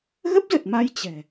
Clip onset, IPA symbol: ɣ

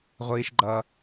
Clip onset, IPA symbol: ʁʷ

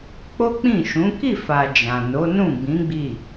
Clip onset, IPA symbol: k͡p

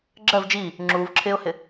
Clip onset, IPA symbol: ɡ͡ǁ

